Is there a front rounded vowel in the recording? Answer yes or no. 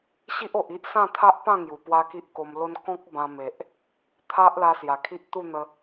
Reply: no